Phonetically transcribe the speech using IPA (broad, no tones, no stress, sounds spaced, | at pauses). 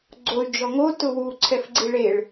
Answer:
ɡ͡ǀ o y̯ d͡ʒ ɔ ŋ o t ʊ w u ǀʰ ɛ f ɡ͡ǀ i ɭ e ɭ